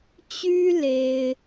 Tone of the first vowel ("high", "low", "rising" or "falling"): high